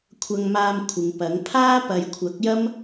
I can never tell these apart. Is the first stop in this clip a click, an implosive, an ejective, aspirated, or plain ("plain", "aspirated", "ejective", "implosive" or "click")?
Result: aspirated